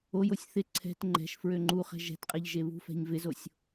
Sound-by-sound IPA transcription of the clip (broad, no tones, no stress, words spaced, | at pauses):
ojosʲ θɪ ǀʰɛ̤t ŋ͡ǃɛ̤ʃ fɹøŋ͡ǃuχɛ̤ ʒɛ̤tqʼɛʎ ʒeβṳfɛ̤ɲ vɪzosʲ